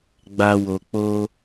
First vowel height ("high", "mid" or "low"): low